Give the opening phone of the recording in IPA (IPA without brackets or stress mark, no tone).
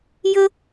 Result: j